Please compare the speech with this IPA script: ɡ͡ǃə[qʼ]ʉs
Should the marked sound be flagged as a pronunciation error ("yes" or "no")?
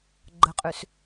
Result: no